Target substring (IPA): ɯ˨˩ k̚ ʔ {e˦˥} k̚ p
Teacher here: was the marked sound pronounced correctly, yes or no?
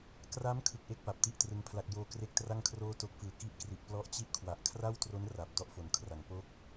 yes